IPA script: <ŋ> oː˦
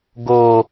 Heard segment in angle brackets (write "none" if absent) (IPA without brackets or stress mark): ɡ